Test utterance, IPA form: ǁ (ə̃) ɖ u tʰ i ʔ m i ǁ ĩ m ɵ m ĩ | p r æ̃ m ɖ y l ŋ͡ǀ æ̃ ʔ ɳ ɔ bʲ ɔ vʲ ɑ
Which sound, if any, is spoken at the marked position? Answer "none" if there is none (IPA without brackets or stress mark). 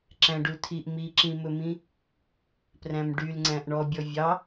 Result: æ̃